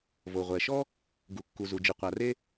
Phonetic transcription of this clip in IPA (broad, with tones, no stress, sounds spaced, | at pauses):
v o˩ ʁʷ ɛ˩ ʃ ɔ˥ | ɡ u˩ kː u˩ z u˩ d͡ʒ ɨ˩ qʷ a˩ r e˥